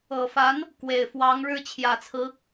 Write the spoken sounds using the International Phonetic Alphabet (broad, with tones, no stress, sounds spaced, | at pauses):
ɤ˨˩ f a˧˥ n | k w e˨˩ ɪ̯ f w ɑ˧˥ ŋ ɻ ɻ̩˥ t͡ɕʰ j ä˨˩ t͡sʰ ɹ̩˧˥